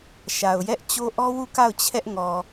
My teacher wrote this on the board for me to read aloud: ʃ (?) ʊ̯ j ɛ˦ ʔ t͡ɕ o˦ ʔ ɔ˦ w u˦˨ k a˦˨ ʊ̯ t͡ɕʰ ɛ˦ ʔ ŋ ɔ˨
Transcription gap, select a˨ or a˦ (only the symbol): a˨